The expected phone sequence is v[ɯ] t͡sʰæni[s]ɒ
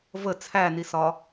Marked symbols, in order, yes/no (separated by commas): no, yes